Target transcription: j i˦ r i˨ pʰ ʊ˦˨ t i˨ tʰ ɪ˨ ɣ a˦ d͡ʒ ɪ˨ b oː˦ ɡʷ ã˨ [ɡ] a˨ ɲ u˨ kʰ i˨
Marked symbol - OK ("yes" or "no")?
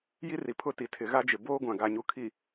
yes